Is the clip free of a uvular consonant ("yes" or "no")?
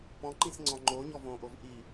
yes